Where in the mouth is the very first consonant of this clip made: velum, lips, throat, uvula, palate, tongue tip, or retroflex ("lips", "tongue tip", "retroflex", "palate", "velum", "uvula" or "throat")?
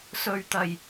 tongue tip